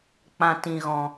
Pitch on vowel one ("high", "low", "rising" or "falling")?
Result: low